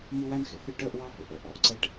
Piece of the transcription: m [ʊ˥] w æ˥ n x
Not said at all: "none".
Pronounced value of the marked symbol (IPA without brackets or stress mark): u˥